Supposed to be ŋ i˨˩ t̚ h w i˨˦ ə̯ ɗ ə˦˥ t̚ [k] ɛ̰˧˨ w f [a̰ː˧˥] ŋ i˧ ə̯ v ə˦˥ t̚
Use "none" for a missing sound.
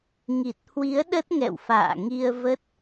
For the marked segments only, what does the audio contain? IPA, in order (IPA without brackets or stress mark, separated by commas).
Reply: ŋ, a̰ː˧˨